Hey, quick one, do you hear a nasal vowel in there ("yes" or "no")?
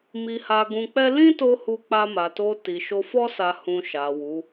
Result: yes